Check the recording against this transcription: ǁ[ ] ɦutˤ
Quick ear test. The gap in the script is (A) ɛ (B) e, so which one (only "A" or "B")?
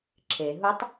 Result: B